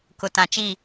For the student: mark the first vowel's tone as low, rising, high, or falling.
low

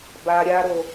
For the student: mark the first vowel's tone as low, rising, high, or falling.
low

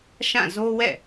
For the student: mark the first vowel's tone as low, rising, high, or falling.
falling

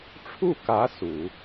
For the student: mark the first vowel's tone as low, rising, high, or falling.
falling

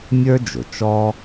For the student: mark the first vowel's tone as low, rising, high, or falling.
high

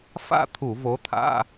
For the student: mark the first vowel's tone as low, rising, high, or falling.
falling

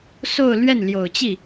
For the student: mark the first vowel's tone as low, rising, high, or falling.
falling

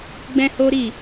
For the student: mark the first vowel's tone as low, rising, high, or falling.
high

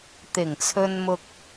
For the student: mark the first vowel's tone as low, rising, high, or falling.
low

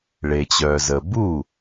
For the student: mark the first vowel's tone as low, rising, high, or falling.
low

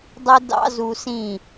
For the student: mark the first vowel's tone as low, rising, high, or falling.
high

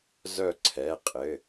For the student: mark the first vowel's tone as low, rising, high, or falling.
falling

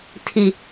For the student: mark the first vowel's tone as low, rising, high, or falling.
low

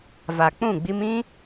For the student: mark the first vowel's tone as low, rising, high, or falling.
low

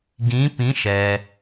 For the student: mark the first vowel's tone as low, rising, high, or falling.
rising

